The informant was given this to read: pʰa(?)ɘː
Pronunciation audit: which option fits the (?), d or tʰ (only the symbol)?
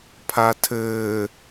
tʰ